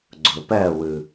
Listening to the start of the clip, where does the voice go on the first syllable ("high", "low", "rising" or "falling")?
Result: low